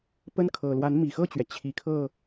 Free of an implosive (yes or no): yes